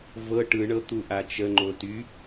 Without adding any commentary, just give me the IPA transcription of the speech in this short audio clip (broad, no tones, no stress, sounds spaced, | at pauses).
v ɤ ʈ ɯ ɳ ɤ t̪ u ʔ a t͡ʃ ə ŋ͡ǃ o t y